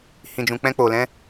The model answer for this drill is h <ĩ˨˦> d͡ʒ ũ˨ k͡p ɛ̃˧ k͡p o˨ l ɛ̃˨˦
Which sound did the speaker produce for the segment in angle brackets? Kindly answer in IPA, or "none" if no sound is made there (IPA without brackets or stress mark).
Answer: ĩ˨